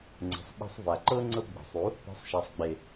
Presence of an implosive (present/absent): present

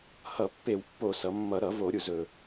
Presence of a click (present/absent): absent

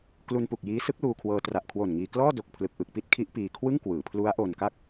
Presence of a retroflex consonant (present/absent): absent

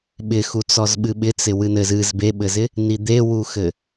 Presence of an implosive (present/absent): present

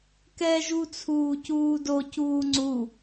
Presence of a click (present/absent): present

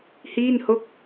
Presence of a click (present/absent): absent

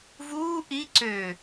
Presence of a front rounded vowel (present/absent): present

